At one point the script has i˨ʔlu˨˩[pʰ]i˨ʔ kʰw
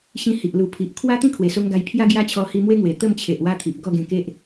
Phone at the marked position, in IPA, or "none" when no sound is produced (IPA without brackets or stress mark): pʰ